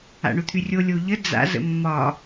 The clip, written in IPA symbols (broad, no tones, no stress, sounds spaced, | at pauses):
a̰ ɳ o t̪ʰ y rʲ o lʲ o ʎ ə d͡z a̰ z ə̰ mː ɒ